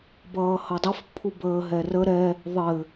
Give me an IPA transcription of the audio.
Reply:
bʌːhʌdˤəf pʰubəːɦɛrə ɾɛ | ðˤɘ

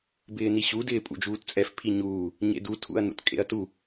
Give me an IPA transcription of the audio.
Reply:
bɪːniɕu dɪːpʼṵd͡ʒuːtt͡sʼɛf pʰiɲuː | ɲḛdu tʰṵɐ̯nṵtkʼḛɐ̯tu

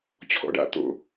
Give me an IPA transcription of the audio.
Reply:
t͡ɕʰɔ̰ɖa̰ t̪o̰

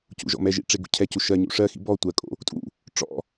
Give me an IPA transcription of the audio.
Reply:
cṵʒɔ̰mɛʒḭ ʈ͡ʂeɡṵcʰɛcu ʃɜɲṵ ʂɜxḭ bɔ tʷɜkʼo̰ | tʼṵ | ʈ͡ʂɔ̰

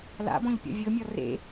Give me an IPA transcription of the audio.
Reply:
la̰bɔ̃ʎ pʲɔ̰vʲɤmʲɔ rḛ

